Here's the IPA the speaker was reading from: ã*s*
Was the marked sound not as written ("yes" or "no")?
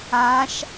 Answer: yes